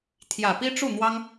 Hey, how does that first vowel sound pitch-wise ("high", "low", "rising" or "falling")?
low